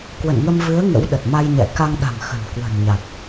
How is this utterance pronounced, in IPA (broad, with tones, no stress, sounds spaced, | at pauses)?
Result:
k w ə̰˧˨ n ŋ ə˧ m v ɨ˨˦ ə̯ ŋ ə̰˧˥ w ɗ ə˨˩ t̚ m a˧ j ɲ ɛ̰˧˨ k a˧ ŋ ɗ a̤˨˩ m x ə̤˨˩ n k w ə̤˨˩ n ɲ a˨˩ t̚